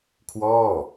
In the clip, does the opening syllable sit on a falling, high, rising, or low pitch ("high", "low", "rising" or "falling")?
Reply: falling